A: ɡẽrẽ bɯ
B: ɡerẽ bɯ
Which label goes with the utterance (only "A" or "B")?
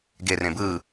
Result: B